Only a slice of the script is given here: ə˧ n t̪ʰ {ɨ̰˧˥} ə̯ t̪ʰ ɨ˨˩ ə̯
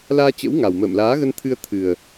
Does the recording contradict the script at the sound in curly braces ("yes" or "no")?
yes